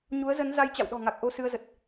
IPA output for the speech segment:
ɲ u˨˦ ə̯ z ə˨˦ n z a˧ j t͡ɕ a̰˧˨ w ɗ ɔ̤˨˩ ŋ a˨˩ k̚ ʔ o˧ s ɨ˧ ə̯ z ə˨˩ t̚

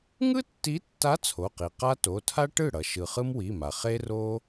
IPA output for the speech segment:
ŋ ɯ˥ tː i˧˥ tː a˧˥ t͡sʰ o˩˧˩ q i˩ q a˥ t o˩˧˩ tʰ a˥ ʈ ɯ˥˩ ɽ ʌ˩ ʃ ɯ˩ χ ɯ˥ m w i˩˧˩ m a˩ χ e˥ r o˥

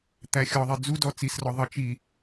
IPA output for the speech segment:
t̪ æ xʲ ɔ ðˤ i d͡z u d ɔ t͡s i s r ɔ ðˤ ʌ t͡ʃ i

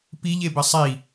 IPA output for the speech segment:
p i ʎ e b ɘ sˤ i

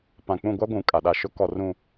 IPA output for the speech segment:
p ã˨ k͡p ũ˦˨ ɡʷ a˦ ɡʷ ũ˨ kʼ a˨ ɗ a˦˨ ʃ ʊ˦ k ɔ˨ r ũ˨

